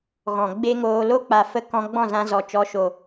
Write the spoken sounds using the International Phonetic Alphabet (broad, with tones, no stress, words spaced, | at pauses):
ɣɔ̃˨ɡ͡be˦ ŋoː˧ lo˦k͡pa˨fə˧ kɔ̃˧ɡ͡bɔ̃˦˨zã˧ zɔ˨t͡ʃɔ˨˦ʃo˨